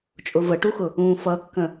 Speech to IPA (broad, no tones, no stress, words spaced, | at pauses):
t͡ʃʼʊvəʈuxʊ | ũːfʌkːə̃